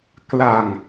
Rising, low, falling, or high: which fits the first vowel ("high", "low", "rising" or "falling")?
low